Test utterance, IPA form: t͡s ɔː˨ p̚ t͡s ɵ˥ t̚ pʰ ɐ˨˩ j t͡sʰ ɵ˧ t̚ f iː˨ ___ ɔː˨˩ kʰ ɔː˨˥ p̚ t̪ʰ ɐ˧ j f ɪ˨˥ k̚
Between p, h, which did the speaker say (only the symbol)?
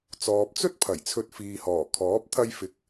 h